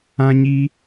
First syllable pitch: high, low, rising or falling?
high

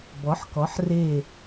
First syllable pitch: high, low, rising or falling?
rising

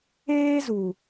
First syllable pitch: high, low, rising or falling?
high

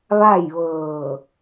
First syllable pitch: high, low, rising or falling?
falling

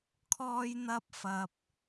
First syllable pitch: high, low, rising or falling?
high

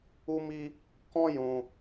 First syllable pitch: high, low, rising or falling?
high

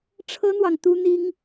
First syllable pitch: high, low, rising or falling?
high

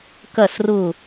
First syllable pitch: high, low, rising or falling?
falling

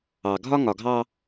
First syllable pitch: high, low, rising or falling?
low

